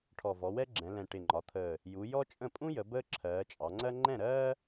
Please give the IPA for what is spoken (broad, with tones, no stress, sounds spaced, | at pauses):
ʈʰ ɔ˨˩ v ɔ˩˧ w ɛ˥ ɡ͡ǁ ɛ̃˩˧ l ɛ̃˨˩ ʈ ɪ˨˩ ŋ͡ǃ ɒ˩˧ t̪ʰ əː˨˩ | j u˩˧ j ɔ˥ t͡ʃʼ ə̃˥˩ pʼ ũ˥ j ə˩˧ b əː˥ ǁʰ ɜː˩˧ t͡ʃʼ ɑ˩˧ ŋ͡ǀ ɜ˥ ŋ͡ǃ ɛ̃˥˩ ɾ ɜː˥